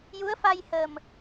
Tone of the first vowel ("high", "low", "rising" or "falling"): rising